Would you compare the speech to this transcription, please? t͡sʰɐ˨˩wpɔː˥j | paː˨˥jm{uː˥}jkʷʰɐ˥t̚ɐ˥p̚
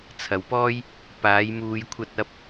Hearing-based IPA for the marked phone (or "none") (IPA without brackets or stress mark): uː˧